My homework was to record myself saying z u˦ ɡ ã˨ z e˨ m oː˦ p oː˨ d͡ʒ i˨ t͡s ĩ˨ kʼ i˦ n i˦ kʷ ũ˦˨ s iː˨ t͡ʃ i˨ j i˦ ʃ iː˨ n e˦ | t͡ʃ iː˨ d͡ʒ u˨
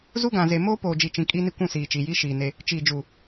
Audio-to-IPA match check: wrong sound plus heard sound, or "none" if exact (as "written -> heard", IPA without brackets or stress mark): t͡s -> t͡ʃ